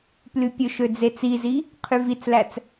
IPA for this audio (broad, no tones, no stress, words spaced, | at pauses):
plypʲɵʃø d͡zet͡sizi | qʰyvit͡slæt͡s